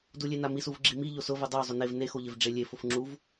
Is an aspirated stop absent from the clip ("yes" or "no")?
yes